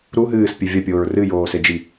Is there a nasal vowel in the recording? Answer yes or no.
no